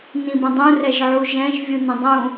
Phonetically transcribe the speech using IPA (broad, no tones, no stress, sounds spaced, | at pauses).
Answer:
n ĩ b ə̃ dˤ ũ r ɛ ʒ ʕ u ʒ ɛ̃ ʒ vʲ u n ə̃ dˤ ũ